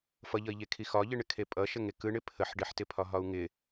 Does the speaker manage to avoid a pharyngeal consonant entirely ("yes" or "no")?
no